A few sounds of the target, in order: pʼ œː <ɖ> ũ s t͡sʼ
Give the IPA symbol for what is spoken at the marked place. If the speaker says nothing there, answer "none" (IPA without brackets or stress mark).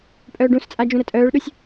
ɖ